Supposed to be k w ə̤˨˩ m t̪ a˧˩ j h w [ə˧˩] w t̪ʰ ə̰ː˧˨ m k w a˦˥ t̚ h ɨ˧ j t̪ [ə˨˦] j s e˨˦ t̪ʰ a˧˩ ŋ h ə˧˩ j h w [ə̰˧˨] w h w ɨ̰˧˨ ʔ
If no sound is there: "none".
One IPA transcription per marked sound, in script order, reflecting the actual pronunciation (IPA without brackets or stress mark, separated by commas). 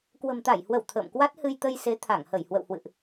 ə˧˩, ə˧, ə̰˧˨